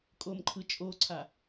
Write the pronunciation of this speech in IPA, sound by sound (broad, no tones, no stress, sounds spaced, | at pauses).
kʼ o m ǃʰ ɯ t͡ʃʼ o ǀʰ a